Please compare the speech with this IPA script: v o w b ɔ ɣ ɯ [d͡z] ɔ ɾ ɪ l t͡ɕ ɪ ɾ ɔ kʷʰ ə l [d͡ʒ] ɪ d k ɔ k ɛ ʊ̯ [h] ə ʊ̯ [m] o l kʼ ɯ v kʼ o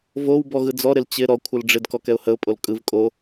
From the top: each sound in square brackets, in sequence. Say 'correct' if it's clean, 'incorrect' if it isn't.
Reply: correct, incorrect: ɖ͡ʐ, correct, incorrect: pʼ

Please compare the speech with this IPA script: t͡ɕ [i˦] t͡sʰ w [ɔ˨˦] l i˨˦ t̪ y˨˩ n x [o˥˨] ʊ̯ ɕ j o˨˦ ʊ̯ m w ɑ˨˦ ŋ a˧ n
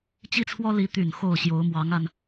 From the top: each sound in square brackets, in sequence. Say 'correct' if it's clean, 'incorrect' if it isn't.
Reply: correct, incorrect: ɔ˦, correct

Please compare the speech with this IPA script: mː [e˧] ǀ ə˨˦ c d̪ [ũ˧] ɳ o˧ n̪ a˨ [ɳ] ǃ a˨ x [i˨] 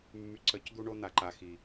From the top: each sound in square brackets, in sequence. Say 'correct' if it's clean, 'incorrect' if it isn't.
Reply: incorrect: y˧, incorrect: u˧, incorrect: none, correct

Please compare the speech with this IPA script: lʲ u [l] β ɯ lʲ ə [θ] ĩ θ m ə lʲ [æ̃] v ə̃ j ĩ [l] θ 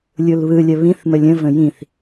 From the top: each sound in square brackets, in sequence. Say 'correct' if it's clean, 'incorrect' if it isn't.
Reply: correct, incorrect: β, incorrect: ə̃, incorrect: none

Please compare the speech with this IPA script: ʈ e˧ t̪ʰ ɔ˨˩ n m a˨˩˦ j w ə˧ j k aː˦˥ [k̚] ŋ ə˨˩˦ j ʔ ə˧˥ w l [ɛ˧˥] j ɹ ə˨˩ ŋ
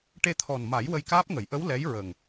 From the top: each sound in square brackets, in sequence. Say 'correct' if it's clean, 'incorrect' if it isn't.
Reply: incorrect: p̚, correct

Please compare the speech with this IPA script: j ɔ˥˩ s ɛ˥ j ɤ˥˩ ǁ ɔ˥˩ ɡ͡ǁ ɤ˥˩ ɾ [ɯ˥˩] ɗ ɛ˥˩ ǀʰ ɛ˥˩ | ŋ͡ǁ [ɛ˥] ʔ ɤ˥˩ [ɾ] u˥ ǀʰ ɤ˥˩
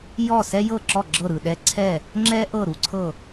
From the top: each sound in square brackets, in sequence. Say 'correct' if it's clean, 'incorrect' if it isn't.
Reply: correct, correct, correct

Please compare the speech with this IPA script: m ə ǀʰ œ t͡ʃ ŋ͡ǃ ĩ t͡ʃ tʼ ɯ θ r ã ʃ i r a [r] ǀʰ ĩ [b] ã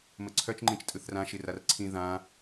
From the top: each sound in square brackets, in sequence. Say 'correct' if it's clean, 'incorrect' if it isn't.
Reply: correct, incorrect: ð

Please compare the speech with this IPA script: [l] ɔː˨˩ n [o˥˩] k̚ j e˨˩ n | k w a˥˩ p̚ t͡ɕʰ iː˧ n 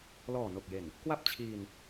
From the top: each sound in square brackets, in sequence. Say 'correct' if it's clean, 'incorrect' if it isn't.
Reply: correct, incorrect: o˨˩

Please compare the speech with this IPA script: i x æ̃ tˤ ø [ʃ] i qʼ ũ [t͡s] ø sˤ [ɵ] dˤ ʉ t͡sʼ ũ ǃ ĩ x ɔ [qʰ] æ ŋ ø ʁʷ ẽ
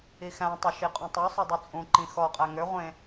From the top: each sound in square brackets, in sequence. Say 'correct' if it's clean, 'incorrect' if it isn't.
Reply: correct, incorrect: tˤ, correct, incorrect: qʼ

